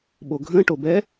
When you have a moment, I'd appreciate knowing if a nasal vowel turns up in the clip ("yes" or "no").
yes